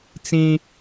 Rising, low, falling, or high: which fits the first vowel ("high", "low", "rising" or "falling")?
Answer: high